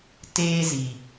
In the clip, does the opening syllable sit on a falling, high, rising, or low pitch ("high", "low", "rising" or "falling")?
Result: high